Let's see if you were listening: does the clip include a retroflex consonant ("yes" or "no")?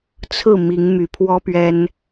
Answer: no